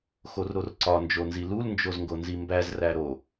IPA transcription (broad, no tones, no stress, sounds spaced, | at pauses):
x o r ɾ o r ǀ ɒ n d͡ʒ o n z i l u l n d͡ʒ o z ŋ ɡ o n z i m b æ z r æ ɾ o